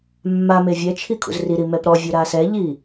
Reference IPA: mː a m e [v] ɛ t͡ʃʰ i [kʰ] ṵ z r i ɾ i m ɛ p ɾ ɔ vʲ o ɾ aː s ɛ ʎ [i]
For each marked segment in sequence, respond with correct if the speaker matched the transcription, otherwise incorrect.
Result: incorrect: vʲ, correct, correct

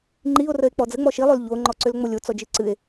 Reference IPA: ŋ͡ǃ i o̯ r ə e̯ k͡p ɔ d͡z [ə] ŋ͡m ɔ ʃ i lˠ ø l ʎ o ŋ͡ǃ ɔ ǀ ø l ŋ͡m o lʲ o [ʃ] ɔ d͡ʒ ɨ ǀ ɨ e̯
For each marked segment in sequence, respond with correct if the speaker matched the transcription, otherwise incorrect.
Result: correct, incorrect: t͡s

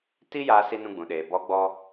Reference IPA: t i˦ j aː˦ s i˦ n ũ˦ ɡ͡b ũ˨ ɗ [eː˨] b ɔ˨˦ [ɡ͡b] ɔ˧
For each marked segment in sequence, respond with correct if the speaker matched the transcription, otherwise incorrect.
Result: correct, correct

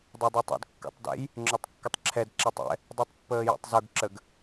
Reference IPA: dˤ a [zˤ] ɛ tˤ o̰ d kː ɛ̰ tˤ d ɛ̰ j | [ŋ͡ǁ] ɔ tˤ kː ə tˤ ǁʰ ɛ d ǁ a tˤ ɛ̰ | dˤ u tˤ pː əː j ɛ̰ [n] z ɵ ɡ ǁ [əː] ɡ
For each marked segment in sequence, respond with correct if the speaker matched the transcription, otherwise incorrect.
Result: incorrect: dˤ, correct, incorrect: tˤ, incorrect: ə

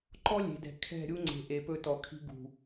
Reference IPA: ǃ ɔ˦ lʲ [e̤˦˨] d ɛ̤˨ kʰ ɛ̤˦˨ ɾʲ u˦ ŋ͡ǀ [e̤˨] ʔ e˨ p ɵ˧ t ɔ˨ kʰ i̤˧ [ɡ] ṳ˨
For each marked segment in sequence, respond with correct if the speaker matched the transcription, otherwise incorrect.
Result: incorrect: e̤˨, correct, correct

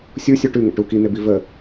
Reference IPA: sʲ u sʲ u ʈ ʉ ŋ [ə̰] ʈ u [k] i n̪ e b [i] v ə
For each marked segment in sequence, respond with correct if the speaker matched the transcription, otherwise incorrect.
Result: correct, correct, correct

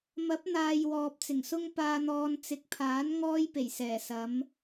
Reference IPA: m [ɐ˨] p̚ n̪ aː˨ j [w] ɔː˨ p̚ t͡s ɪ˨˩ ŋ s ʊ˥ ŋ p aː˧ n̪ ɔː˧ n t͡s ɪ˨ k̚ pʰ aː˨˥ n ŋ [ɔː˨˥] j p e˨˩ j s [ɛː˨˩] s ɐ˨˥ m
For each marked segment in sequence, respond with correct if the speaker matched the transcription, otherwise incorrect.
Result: incorrect: ɐ˨˥, correct, incorrect: ɔː˥, correct

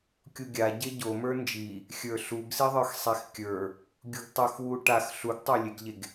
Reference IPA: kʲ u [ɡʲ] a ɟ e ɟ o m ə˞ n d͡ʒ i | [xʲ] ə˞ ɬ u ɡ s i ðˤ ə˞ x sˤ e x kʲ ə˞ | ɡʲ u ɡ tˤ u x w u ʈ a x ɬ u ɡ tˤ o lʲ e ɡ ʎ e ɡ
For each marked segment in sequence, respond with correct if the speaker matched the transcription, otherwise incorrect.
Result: correct, correct

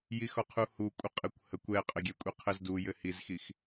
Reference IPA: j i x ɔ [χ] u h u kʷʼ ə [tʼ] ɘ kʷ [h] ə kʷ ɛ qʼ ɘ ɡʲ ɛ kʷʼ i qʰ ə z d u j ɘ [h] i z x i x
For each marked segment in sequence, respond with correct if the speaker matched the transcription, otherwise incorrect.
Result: incorrect: qʰ, incorrect: qʼ, correct, correct

